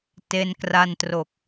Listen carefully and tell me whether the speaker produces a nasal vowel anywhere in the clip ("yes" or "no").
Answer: no